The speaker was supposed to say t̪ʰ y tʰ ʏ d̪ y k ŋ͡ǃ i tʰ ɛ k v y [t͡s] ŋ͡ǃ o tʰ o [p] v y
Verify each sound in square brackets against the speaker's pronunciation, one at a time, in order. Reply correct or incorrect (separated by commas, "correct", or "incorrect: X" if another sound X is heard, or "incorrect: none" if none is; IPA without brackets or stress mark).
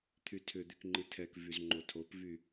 incorrect: z, correct